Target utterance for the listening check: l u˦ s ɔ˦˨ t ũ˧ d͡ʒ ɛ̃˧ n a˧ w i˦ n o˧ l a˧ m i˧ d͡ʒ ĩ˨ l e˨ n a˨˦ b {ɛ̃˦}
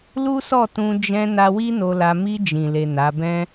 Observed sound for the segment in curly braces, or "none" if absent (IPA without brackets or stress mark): ɛ̃˦